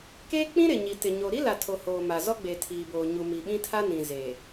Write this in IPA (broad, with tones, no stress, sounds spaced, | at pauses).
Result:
k eː˦ k͡p ĩ˦ ɾ ɪ˨ ɲ i˨ t ɪ˨ ɲ o˨ ɾ i˦ l a˨ tʰ o˨ h oː˨ m a˨ z ɔ˦ ɡ͡b e˨ tʰ iː˨ b oː˨ ɲ u˨ m i˨ ɓ ĩ˦ tʰ a˦ n ĩ˨ z eː˨